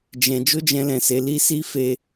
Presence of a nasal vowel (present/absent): present